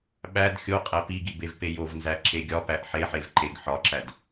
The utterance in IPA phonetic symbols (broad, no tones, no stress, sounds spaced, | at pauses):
ɓ æ d xʲ o qʼ æ p i ɡ i b e v p e j o v n z æ ǁ e ɡʲ ɒ p æ ʔ ħ e ħ e v ǃ e ɡ ħ ɒ ǁ æ d